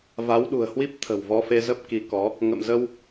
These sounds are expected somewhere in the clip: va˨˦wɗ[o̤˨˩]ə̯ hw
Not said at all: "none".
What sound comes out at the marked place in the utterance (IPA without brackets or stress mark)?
ṳ˨˩